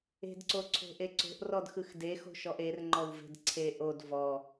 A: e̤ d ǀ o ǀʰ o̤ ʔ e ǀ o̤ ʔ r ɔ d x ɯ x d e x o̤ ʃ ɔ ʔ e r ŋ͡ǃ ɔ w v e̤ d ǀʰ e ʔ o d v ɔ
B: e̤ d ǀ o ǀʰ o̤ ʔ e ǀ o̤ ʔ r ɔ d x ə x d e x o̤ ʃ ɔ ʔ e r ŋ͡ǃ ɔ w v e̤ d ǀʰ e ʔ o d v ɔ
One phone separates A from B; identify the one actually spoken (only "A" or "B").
A